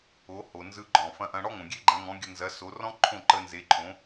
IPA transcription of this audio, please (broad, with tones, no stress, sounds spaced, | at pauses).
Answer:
o˩˥ h o˩ n z ɯ˧ ɡ͡ǃ ɔ̃˩ f ɐ̃˧ ʔ ɐ̃˧ ɽ ɔ˥ ŋ õ˩ ɡʲ e˥ ɡ͡ǃ ɐ̃˩˥ ŋ ɔ̃˩˥ ɡʲ ə˧ n z ɐ˩˥ s o˩˥ r ɔ̃˥ ǃʰ õ˥˩ ǃ ə˧ n z e˩˥ ǃʰ õ˩˥